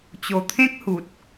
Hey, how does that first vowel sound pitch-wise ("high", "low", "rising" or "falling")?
low